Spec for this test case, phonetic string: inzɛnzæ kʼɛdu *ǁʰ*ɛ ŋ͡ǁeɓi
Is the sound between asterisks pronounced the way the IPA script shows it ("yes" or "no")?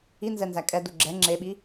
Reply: no